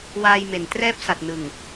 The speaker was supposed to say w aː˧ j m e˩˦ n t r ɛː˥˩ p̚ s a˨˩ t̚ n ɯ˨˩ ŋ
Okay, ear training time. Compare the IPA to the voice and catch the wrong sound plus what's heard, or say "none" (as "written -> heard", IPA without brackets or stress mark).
none